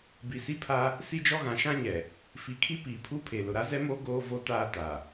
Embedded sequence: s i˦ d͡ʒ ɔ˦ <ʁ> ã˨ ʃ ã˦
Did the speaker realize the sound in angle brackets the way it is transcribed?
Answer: no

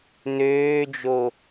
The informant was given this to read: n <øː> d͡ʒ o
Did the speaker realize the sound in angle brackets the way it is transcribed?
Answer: yes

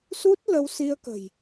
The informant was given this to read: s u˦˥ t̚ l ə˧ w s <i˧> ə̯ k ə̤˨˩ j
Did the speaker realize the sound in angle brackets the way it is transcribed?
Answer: yes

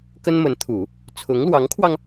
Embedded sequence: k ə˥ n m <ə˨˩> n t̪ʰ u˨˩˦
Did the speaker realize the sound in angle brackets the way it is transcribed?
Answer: no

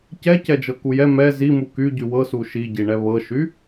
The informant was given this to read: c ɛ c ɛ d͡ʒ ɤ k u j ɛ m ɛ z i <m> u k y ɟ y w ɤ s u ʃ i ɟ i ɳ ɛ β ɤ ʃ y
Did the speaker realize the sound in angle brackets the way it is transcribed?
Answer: yes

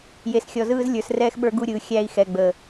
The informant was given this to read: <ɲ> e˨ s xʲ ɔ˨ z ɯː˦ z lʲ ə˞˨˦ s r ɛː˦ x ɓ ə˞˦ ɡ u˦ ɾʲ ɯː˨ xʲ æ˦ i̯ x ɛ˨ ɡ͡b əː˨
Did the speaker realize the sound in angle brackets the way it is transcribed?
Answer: no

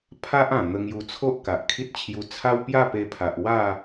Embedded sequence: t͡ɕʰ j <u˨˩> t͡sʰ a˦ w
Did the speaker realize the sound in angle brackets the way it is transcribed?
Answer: no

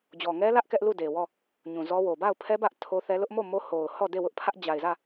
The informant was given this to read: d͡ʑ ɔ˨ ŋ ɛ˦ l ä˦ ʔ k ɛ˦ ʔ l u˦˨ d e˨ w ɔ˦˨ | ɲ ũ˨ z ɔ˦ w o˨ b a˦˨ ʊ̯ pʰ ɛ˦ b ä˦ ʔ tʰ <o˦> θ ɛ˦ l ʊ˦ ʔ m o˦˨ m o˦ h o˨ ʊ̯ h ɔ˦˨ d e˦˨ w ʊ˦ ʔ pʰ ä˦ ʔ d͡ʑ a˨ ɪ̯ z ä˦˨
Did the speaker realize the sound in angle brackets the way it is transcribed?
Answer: yes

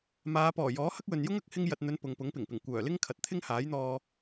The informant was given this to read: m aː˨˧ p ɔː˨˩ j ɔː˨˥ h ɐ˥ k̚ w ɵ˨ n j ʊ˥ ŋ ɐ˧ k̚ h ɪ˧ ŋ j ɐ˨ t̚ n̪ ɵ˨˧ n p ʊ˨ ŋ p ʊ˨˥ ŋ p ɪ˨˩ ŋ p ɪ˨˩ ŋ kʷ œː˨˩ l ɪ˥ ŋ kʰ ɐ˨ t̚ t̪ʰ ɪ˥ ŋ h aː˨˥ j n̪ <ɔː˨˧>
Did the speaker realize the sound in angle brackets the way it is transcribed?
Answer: no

